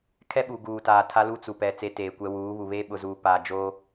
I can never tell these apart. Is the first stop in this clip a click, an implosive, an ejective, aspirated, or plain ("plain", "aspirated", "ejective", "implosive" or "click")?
aspirated